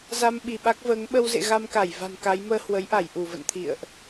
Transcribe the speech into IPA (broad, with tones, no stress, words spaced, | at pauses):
za˧mɓi˧˩ɓa˦˥k̚vəː˨˦ŋ ɓə˧wzḛ˧˨ ɣa˧mka˧˩j va̤˨˩nka˨˦j məː˧hwə˨˦jʔa˧˩j ʔu˧˩və̰˧˨nt̪ʰḭ˧˨ə̯ʔ